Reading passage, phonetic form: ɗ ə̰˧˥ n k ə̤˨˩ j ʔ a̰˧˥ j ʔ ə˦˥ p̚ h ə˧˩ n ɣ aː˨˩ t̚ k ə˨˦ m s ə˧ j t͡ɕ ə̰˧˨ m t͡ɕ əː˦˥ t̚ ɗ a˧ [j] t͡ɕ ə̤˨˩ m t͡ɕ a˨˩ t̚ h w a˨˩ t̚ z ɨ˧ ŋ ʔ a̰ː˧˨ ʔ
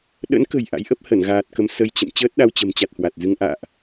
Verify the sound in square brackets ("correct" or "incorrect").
incorrect